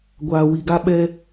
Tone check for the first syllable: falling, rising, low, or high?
low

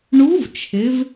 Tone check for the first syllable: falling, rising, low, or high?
rising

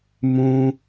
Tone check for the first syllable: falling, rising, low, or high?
high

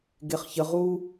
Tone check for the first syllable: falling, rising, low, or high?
low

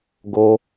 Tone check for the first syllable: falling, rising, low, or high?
high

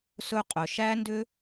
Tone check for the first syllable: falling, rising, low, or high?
high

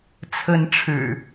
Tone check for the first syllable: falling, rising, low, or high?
rising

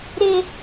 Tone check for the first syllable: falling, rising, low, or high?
high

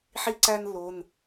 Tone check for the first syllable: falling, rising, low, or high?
high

